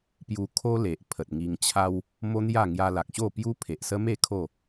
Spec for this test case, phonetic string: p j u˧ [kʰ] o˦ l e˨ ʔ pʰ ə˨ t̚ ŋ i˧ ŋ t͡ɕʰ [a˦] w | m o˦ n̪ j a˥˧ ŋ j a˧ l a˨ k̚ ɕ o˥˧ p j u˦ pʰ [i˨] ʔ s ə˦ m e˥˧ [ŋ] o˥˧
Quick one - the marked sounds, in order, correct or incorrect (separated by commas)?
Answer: correct, correct, incorrect, incorrect